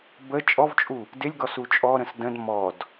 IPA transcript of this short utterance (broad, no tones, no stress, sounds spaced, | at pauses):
b ə t͡ʃʼ ɔ v t͡ʃʼ u | d ɪ lʲ ɡ ɔ s u t͡ʃʼ ɔ ɾ ə̃ s d ə̃ d m ɔ d